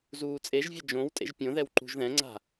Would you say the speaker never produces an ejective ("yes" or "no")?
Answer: no